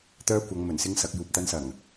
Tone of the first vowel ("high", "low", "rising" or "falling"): high